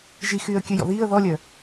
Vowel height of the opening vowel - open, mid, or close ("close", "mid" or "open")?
close